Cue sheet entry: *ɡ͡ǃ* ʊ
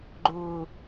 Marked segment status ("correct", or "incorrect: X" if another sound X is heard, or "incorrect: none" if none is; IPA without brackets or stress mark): correct